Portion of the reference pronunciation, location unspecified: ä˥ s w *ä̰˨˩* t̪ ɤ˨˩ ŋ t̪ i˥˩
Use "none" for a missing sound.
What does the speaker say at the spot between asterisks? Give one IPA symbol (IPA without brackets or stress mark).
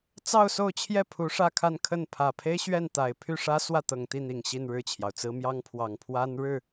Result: ä˥˩